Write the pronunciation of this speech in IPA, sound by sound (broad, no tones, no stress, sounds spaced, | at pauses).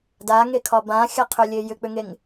d a ŋ e kʰ ɒ b ã xʲ a qʰ ʏ lʲ e j ʏ k͡p ʏ ŋ e ŋ